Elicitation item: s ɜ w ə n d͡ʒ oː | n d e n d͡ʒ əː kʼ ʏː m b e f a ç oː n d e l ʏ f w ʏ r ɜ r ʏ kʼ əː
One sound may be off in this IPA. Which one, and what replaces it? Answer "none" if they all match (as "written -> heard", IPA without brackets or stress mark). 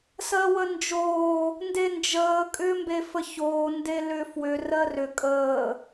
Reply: a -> ə